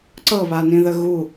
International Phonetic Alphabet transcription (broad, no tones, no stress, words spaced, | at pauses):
ǀɤβanĩðə ɣu